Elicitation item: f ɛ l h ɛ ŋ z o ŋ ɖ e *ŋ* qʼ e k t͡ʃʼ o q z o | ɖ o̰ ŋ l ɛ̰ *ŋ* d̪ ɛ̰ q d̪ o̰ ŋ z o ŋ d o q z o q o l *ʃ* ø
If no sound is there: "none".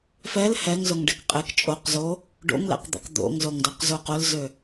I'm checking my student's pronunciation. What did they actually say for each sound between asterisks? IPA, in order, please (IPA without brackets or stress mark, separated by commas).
k, q, z